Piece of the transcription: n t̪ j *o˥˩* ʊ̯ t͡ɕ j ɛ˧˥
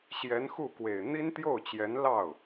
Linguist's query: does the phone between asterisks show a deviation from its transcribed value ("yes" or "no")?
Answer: no